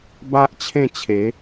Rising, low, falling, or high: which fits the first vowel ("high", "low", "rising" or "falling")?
high